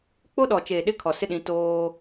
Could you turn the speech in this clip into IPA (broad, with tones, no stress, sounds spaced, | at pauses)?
k͡p o˦ ɗ ɔ˨ t͡ʃ e˨ ɗ ɪ˦ kʰ ɔ˨ s ɪ˦ ɗ ĩ˨˦ t oː˦